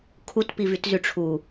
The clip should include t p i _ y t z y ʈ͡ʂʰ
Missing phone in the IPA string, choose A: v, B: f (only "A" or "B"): A